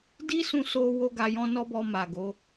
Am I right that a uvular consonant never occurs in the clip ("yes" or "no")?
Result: yes